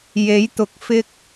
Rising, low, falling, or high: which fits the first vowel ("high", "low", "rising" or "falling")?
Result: rising